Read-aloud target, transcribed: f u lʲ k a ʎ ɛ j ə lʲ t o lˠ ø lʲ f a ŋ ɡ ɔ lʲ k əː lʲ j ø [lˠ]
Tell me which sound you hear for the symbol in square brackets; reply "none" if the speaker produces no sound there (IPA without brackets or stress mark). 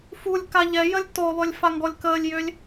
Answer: lʲ